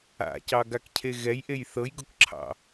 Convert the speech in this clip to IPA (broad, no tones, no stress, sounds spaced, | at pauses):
a̰ c ɑ ɡ a k cʰ e ɣ ɛ j ʔ e j θ ɤ j ɡ ʊ k ǁʰ ɑ̰